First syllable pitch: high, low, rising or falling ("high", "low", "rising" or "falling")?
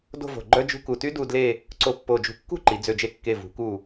falling